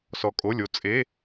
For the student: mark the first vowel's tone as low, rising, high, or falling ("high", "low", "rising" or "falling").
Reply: low